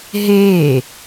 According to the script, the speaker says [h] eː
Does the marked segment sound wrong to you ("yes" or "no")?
yes